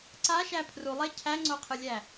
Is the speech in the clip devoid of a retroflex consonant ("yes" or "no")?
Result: yes